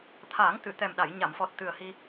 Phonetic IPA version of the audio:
t̪ʰ aː˨˩˦ ŋ t̪ ɨ˨˩˨ t̪ ɛ˨˩ m ɗ a˨˩˨ j ɲ a˨˩˨ m f ɔ˨˩ t̚ t̪ ɨ˨˩ ə̯ h i˧

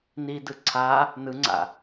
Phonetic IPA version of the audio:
n i d ɯ ǀʰ a | n ɯ ŋ͡ǀ a̰

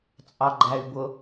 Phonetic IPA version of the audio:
t͡sʼ ɑ ɡ͡ǃ æ y̯ b ʊ

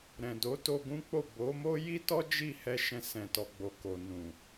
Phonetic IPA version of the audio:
ɾ ɛ̃˨ d o˨˦ t o˧ ɡ ũ˦ k͡p o˦˨ b o˨˦ m o˦ j i˦ t ɔ˦ d͡ʒ i˦˨ h ɛ˧ ʃ ɛ̃˧ s ɛ̃˨ t ɔ˨ ɡ͡b o˨ k o˨ n ũ˨

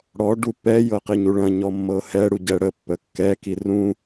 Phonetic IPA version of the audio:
ɽ ɔ ɖ u pː ɛ j ɤ q i ɲ u ɭ ɐ̃ ɲ ɔ mː ɤ h ɛ ɽ u ɟ ɛ ɽ ə pː ə kː ɛ k i r ũ

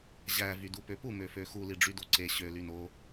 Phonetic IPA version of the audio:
ʑ æ v y d u p ø p u m ø f ø x u l i ɖ͡ʐ y d o ǀ e ɕ ø l y n o

